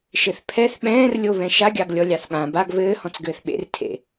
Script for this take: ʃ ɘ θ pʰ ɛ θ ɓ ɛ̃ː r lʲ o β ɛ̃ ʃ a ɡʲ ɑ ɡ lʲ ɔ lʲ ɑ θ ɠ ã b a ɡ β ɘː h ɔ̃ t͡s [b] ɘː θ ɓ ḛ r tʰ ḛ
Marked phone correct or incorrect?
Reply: incorrect